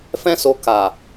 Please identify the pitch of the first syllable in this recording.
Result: high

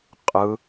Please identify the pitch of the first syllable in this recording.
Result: low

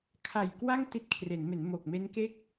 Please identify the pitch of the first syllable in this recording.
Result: low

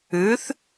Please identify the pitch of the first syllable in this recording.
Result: rising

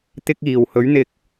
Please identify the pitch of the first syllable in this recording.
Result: high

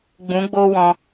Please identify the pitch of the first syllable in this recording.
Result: rising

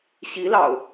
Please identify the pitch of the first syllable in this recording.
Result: rising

